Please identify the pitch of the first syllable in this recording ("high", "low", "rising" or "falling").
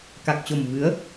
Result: low